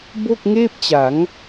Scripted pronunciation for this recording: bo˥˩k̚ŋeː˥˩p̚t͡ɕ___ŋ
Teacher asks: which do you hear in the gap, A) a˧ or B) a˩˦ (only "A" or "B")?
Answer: B